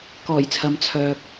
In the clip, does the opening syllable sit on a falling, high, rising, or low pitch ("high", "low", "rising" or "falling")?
low